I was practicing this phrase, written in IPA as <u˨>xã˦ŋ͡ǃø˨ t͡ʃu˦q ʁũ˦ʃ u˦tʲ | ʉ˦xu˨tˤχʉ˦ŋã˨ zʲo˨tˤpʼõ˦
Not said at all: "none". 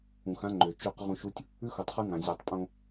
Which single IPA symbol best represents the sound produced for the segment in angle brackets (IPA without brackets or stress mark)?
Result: ũ˨